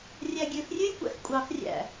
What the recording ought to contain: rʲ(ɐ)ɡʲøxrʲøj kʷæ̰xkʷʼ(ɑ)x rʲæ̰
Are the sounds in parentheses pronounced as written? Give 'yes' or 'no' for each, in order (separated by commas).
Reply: no, yes